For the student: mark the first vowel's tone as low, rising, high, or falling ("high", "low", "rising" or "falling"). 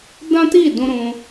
high